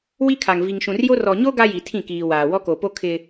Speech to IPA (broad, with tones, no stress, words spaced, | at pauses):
wi˦kʰa˨ŋ vi˨ŋʃũ˨rjo˦ rɔ˨ɲo˦ ɡa˦ji˨tʰĩ˦˨kiː˨ waː˨ wɔ˦ko˨po˦ kʰɪ˦